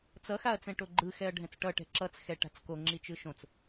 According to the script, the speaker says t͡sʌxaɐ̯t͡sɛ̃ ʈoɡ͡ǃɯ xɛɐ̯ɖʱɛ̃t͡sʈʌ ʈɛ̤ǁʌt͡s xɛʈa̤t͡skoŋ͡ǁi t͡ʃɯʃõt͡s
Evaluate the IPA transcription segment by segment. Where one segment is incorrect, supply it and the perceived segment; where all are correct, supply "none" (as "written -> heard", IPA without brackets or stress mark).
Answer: none